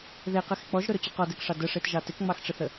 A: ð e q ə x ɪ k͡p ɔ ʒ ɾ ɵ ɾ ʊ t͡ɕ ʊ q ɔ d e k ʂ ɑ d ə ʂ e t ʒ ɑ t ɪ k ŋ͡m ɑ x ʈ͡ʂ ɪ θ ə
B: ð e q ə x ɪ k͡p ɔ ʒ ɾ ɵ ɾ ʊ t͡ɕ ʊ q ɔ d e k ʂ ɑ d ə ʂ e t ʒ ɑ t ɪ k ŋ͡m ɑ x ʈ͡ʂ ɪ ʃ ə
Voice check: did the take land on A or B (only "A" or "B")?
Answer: A